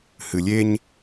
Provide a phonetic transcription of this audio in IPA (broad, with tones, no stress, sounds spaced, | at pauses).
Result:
h ɨ˨ lʲ e˦ ɲ